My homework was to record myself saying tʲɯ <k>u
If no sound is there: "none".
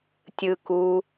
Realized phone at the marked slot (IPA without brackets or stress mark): k